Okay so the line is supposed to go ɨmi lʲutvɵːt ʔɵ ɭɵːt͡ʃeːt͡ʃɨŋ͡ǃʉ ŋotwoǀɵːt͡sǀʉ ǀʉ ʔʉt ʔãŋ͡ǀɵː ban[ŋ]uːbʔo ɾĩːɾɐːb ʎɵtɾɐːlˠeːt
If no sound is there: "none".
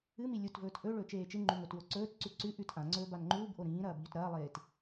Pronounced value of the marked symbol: ŋ͡ǃ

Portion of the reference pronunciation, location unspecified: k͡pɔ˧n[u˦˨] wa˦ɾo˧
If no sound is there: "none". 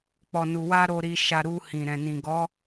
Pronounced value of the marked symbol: u˧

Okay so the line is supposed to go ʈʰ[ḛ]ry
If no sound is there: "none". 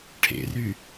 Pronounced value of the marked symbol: ḛ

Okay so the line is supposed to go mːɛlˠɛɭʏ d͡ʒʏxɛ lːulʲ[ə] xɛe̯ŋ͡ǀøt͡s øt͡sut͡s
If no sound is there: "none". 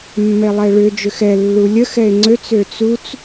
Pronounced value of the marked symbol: ə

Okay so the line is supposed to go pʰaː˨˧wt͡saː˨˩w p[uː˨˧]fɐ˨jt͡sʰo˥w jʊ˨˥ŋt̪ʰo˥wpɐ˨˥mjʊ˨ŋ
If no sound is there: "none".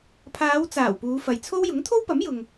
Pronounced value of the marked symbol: uː˨˧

